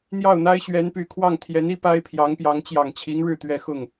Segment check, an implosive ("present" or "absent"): absent